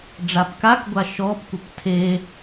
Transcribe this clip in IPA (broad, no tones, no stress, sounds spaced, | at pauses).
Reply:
ɖ͡ʐ a p k a k ɡʷ a ʃ ɔ p kʷ ɘ p tʰ e